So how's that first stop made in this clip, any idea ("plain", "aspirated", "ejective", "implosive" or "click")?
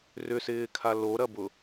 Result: aspirated